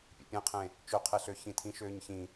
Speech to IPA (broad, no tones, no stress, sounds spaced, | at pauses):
pʲ ḛ pʲ ẽ qʰ ẽ | t͡ʃ ø qʰ e ɬ ø ç ĩ tʰ ĩ ʃ øː ɲ ç ĩ